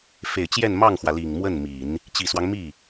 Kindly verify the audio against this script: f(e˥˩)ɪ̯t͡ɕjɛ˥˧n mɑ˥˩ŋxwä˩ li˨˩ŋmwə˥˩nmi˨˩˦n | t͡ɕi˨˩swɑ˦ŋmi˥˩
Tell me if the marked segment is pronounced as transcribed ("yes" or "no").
no